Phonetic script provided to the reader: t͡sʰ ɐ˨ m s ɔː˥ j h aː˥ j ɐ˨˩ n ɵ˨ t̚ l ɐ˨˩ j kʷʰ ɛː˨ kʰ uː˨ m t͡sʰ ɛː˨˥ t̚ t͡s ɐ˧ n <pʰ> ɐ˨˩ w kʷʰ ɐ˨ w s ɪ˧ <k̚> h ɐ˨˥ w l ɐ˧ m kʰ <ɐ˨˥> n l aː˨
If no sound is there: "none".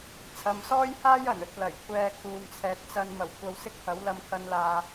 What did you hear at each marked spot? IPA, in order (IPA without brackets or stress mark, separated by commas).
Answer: m, k̚, ɐ˧